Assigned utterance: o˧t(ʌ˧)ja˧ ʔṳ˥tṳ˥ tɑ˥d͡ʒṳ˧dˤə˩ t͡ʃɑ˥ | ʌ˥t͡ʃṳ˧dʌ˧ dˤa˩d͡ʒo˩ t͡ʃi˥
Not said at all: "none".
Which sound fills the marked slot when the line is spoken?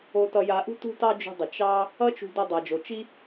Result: ʌ˧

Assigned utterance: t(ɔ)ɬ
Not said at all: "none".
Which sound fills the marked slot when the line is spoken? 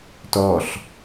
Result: ɔ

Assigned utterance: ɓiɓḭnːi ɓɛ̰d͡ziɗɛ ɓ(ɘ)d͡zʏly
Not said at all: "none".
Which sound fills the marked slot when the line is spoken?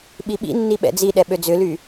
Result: ø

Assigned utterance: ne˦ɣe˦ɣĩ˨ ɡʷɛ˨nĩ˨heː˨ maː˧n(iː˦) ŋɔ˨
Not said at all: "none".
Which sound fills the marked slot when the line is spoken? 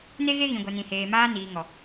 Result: iː˨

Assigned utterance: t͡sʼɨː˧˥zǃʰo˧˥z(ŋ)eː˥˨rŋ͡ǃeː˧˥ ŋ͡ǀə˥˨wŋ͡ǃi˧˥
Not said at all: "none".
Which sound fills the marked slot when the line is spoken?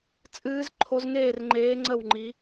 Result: ŋ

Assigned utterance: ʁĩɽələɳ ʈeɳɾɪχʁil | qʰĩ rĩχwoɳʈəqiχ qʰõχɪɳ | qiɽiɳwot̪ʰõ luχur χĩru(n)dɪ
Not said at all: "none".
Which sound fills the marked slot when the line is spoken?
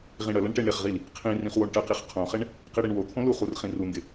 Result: n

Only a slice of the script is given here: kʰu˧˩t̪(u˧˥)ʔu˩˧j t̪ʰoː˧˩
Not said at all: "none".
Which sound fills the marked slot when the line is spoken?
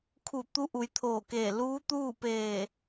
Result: u˧˥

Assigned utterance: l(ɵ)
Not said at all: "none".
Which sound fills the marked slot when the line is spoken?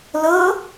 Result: ɤ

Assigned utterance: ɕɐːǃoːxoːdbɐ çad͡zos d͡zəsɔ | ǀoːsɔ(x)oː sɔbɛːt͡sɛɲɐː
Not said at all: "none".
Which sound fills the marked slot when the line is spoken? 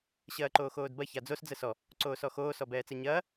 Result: x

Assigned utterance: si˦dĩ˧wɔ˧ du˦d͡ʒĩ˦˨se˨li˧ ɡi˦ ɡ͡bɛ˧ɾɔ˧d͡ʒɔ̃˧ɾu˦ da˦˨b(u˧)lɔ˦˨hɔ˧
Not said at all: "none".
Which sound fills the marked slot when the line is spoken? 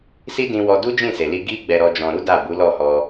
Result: u˨˦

